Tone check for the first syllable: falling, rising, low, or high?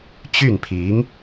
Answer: falling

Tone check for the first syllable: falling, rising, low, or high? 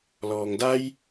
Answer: low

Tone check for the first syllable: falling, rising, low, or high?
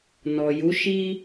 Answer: low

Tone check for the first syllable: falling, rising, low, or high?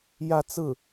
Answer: falling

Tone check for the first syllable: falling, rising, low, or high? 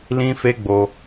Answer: high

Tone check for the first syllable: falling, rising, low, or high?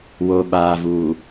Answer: low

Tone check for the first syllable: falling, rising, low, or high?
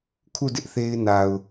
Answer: falling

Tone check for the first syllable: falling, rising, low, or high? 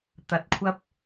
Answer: rising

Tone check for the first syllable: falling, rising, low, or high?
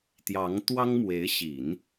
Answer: rising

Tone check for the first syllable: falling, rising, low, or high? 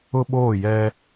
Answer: high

